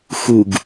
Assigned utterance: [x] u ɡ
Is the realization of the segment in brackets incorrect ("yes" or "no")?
no